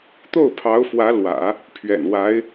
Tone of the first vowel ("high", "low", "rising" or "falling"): falling